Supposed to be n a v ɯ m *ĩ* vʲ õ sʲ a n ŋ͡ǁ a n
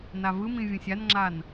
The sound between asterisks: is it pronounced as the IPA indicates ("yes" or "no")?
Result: yes